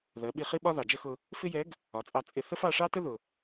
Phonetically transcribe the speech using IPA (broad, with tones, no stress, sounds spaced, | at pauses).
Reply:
ð ɜ˩˧ ɓ i˧ χ i˥ ɓ ɒ˥ ð ɑ˩ d͡ʒ ə˥ x ʊ˧ | f ɪ˥ j ɛ˧˥ ɡ | ɒ˩˧ t͡sʼ ɑ˧ t͡sʼ ɪ˧ θ ə˥ f ɑ˧ ʂ ɑ˥ t ə˥ ð ʊ˩